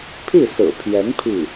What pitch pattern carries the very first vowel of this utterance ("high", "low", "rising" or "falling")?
falling